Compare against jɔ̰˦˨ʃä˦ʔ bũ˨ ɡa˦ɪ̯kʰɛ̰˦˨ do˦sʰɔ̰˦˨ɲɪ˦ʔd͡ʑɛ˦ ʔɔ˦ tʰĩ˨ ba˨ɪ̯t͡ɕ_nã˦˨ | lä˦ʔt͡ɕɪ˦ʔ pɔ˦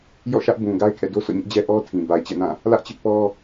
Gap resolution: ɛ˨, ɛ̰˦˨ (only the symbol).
ɛ̰˦˨